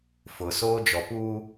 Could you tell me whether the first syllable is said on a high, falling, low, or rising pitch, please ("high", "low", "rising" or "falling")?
low